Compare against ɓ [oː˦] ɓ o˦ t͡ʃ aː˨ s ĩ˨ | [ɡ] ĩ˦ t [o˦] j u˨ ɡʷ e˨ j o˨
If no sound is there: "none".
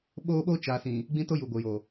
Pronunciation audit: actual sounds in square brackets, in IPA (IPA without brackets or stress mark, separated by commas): oː˦, ɡ͡b, o˦